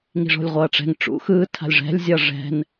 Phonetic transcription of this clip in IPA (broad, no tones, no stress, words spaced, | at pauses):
ŋi̤ʐo̤lʲʁʷʌːʈ͡ʂɛ̤ŋ ʈ͡ʂṵ xɯː tʰa̤lʲʐɛ̤lʲ zʲʌːʐɛ̤n